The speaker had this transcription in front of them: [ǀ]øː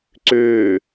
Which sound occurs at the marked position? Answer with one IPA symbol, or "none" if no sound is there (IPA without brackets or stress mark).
ǀ